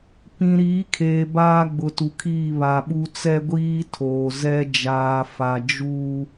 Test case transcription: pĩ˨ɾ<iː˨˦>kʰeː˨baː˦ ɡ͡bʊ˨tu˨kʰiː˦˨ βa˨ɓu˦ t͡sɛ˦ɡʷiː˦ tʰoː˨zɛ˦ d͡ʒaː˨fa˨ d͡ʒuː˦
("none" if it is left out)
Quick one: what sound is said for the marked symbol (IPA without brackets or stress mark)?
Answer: iː˨˦